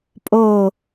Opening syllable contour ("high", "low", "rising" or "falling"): low